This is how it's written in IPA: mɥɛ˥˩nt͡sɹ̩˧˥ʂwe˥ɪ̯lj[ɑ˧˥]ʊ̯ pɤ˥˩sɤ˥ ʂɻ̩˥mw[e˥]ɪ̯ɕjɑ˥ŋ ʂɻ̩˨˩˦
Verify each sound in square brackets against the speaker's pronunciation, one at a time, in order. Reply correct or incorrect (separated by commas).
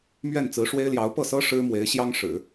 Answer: correct, incorrect